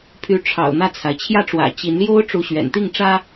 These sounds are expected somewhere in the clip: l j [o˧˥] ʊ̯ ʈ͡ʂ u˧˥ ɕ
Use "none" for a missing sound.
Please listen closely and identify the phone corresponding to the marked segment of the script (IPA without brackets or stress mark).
o˥